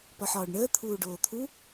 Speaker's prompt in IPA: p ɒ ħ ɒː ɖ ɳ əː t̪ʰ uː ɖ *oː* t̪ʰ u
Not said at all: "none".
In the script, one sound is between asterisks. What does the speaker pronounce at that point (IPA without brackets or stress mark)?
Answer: oː